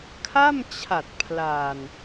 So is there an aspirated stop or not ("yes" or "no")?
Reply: yes